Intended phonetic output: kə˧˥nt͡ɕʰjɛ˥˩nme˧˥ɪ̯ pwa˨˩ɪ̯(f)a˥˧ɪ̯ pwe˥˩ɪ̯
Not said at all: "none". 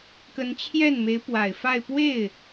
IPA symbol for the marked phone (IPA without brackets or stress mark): f